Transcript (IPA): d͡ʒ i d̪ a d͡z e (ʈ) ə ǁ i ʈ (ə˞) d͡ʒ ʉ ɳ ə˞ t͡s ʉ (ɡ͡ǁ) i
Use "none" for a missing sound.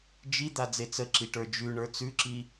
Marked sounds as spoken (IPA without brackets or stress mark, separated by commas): t͡s, ə˞, ǁ